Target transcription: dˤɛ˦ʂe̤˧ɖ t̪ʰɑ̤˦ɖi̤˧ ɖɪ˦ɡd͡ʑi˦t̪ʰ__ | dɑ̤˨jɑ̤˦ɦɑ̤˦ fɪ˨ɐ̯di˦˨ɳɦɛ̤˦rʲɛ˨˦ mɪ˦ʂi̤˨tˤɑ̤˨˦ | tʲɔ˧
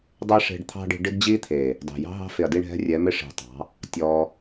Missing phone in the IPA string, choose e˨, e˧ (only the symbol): e˨